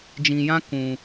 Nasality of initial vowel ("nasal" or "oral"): nasal